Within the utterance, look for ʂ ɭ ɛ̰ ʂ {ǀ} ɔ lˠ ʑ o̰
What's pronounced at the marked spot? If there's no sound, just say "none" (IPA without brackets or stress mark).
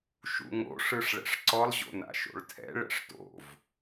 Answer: ǀ